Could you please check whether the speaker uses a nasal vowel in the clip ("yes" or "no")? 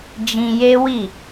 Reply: yes